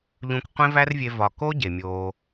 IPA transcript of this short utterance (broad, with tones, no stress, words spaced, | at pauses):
ʎũ˧kqʷẽ˦væ˦rvʲe˧ vɒ˨ko˦ ɟe˨mʲoː˧